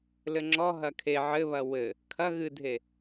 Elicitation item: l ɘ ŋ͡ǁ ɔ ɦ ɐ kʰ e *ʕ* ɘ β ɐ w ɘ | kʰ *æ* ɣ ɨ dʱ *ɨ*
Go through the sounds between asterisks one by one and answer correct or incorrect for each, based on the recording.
correct, incorrect: ɐ, incorrect: e

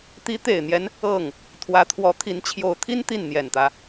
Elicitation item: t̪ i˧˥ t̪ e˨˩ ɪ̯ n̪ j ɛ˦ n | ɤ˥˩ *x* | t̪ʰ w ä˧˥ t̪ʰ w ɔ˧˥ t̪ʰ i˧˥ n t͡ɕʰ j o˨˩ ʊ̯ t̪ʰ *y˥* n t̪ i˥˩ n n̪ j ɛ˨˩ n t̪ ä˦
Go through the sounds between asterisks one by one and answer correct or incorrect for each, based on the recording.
incorrect: ŋ, incorrect: i˥

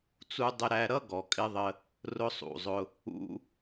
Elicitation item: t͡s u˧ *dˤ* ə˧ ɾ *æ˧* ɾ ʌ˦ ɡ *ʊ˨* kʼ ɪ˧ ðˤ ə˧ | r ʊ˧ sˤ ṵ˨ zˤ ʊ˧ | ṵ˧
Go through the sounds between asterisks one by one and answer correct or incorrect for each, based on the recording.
correct, correct, incorrect: ɔ˨

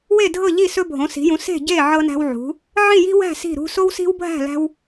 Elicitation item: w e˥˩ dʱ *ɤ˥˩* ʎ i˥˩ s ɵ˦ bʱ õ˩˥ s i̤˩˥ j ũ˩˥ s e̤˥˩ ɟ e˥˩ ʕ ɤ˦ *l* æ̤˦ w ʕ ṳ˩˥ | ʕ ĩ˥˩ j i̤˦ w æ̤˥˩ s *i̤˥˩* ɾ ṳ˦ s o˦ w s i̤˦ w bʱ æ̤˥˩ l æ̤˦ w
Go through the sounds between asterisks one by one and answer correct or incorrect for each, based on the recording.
correct, incorrect: n, correct

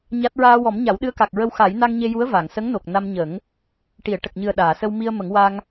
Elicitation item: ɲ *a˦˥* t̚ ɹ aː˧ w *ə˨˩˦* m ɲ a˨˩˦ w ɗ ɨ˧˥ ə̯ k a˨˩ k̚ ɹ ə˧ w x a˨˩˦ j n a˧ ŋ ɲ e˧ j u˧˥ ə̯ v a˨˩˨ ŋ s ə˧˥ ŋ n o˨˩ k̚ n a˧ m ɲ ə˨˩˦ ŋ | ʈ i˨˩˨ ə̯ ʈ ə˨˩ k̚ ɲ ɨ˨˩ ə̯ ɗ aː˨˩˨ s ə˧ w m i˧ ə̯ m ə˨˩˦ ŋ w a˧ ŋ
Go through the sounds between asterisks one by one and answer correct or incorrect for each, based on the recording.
correct, incorrect: ɔ˨˩˦

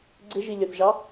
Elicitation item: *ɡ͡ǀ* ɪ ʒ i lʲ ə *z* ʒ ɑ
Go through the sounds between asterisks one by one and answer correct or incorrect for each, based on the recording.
correct, incorrect: θ

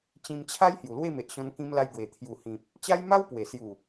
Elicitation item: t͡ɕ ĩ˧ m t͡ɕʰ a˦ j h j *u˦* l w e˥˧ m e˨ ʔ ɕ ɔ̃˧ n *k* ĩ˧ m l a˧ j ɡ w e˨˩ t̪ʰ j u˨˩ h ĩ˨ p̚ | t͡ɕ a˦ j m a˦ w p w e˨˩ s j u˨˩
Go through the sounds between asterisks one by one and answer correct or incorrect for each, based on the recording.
incorrect: u˨˩, correct

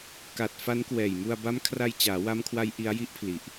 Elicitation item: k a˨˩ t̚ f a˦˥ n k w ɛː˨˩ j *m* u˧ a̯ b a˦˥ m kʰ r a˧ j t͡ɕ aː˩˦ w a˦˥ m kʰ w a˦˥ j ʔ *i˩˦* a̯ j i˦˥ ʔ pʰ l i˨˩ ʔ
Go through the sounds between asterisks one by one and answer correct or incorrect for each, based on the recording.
correct, incorrect: i˦˥

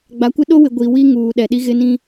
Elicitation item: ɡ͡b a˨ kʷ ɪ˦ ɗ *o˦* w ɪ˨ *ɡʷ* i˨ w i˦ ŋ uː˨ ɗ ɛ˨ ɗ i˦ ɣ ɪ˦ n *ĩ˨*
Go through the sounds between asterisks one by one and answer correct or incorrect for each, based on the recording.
correct, correct, incorrect: ĩ˦

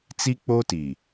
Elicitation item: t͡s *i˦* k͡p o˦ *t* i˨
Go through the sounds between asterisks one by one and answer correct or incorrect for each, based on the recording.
correct, correct

